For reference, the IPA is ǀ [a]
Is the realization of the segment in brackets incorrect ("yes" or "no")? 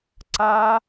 no